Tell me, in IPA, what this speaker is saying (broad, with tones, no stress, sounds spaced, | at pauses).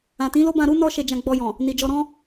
ã˨ t ĩ˨˦ l o˦ b ã˧ ɾ u˦ n ɔ˦ ʃ e˧ d͡ʒ ã˧ ɡ͡b ɔ˧ j ɔ̃˨ | n i˨ d͡ʒ ɔ˧ ɾ ɔ̃˦